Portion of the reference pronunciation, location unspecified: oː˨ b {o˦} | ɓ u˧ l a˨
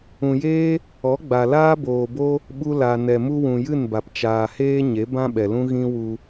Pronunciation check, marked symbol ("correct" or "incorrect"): correct